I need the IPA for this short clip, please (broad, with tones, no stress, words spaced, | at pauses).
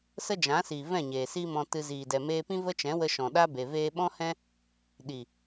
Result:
sə˦d͡ʒã˨˦siː˨ vɛ̃˦˨ɲeː˨ siː˦mɔ̃˧ tɨ˧ ziː˨dɛ˨ meː˧pĩ˦ və˦t͡ʃɛ̃˨˦wə˧ ʃɔ̃˨ɗa˦be˨ veː˧ɓɔ̃˦hɛ̃˦ | ɗi˨